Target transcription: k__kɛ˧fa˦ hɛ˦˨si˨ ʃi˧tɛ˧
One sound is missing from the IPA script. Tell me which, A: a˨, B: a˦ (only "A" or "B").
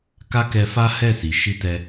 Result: B